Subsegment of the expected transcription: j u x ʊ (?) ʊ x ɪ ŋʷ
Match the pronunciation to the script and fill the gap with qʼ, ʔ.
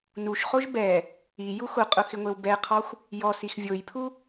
qʼ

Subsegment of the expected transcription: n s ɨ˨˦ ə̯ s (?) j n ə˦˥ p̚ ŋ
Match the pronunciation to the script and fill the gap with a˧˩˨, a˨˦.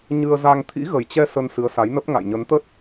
a˨˦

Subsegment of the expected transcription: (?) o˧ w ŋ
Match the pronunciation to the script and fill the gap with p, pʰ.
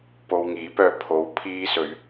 p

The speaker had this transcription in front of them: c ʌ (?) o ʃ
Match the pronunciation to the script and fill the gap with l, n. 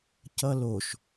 l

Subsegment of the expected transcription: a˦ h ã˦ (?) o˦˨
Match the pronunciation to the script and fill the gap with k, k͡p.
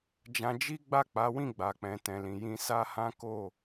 k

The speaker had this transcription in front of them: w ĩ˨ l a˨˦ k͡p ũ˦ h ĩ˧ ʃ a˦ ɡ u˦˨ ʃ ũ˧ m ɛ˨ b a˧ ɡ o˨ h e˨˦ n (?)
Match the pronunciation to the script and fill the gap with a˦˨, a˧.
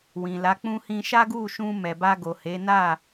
a˦˨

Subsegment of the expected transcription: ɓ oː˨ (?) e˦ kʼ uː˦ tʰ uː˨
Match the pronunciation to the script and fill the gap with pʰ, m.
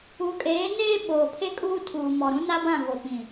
pʰ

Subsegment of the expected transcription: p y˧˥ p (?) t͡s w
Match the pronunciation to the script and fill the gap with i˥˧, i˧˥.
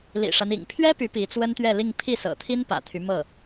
i˧˥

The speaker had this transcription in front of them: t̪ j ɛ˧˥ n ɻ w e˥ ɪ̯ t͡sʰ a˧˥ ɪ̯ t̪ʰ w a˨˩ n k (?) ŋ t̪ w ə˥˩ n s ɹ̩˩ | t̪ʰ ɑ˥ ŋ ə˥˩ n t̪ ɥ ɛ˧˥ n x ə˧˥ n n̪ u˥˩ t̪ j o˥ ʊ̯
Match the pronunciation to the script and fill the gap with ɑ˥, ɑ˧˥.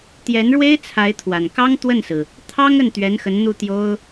ɑ˥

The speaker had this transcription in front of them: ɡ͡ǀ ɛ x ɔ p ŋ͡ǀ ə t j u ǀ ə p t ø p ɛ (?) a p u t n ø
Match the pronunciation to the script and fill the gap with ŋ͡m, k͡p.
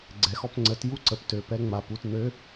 ŋ͡m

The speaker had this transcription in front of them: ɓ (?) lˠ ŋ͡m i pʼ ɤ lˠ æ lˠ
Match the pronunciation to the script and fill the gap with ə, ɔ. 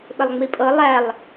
ə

